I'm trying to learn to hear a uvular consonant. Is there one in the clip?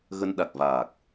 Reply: no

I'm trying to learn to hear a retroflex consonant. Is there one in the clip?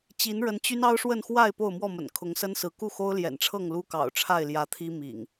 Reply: yes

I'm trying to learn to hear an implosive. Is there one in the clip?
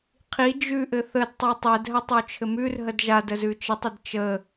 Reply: no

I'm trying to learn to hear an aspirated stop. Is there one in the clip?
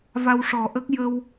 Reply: no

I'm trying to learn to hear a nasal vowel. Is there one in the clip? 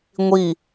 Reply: no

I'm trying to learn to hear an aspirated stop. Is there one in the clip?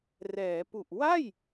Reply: no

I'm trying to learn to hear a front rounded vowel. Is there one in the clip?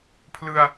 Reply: no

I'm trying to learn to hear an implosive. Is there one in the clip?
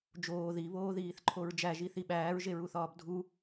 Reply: yes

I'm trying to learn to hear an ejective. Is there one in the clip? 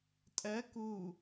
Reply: yes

